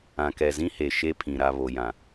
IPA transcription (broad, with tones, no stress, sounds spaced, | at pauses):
ã˨ k ɛ˨ z ĩ˦ h e˨ ʃ e˦ pʰ ĩ˨ ɾ a˨ β o˨ j ã˨